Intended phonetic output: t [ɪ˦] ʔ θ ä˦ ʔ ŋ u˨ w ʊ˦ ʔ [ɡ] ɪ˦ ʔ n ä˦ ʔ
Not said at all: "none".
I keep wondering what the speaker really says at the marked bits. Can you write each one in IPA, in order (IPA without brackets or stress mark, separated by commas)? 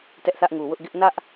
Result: ɛ˦, ɡ